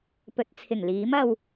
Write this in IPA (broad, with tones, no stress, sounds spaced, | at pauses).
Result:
p ɵ˨˥ t̚ t͡sʰ ɪ˨˩ ŋ l iː˨˥ m ɐ˧ w